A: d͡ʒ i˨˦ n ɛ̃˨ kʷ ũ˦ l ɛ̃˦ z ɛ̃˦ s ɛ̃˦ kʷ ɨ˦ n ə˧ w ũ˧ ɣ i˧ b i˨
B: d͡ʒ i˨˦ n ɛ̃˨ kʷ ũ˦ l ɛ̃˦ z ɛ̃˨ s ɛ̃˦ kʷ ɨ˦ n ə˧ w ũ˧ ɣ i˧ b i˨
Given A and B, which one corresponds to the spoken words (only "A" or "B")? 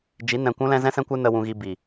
A